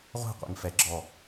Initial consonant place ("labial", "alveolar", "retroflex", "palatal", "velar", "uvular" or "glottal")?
uvular